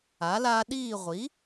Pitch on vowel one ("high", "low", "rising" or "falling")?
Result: rising